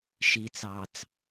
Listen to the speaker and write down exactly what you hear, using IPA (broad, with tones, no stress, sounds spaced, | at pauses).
ʃ i˨ t͡s ɑ˨ t͡s